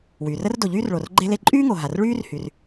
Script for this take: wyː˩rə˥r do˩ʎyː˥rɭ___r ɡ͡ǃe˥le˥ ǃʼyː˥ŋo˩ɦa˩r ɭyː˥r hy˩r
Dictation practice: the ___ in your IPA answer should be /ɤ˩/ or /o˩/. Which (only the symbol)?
o˩